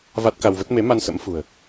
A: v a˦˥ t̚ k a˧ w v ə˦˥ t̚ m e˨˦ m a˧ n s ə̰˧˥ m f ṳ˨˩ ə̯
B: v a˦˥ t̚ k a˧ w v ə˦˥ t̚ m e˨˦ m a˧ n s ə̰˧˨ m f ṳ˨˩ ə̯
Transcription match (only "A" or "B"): A